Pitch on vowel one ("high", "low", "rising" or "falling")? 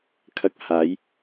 high